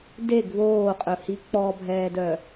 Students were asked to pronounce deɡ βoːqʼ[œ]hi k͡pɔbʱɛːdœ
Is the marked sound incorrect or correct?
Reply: incorrect